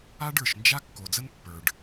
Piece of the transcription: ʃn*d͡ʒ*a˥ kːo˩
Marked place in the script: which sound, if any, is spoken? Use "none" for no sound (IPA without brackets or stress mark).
d͡ʒ